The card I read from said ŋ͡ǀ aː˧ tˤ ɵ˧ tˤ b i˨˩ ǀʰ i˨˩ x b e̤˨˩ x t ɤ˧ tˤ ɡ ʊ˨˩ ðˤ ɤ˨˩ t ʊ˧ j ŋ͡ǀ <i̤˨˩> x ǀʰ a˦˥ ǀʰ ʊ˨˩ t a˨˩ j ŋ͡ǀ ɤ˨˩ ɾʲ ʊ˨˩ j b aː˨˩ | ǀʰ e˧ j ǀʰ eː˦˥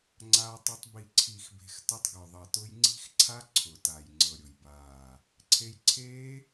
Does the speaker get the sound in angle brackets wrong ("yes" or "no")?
yes